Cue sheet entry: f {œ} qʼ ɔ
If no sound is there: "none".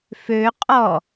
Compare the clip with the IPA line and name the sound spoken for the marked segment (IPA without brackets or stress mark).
ø